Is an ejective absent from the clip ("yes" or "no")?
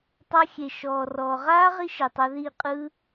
no